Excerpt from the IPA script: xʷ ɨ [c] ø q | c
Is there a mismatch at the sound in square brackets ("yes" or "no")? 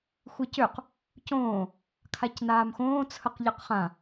no